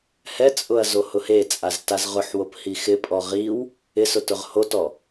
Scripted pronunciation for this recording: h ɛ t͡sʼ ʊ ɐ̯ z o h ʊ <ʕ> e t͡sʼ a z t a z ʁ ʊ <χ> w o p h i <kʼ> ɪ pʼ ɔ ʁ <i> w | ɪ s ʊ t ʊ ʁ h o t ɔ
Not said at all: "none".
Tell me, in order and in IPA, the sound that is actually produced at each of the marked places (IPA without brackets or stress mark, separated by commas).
h, ħ, x, i